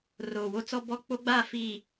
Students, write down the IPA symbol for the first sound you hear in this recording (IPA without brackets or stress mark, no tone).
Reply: r